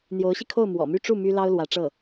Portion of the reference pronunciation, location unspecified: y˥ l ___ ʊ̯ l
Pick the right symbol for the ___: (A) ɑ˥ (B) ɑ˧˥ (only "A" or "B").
A